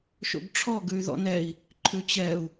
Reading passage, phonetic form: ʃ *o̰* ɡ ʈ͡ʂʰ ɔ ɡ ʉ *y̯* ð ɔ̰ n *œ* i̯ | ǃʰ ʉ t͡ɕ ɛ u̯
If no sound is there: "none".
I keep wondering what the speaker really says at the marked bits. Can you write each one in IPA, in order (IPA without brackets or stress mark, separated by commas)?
o̰, y̯, ɛ